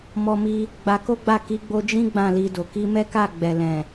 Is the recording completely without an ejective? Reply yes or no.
yes